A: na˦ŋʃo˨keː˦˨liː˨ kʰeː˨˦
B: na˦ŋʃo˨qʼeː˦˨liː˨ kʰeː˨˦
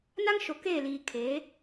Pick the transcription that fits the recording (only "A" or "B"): A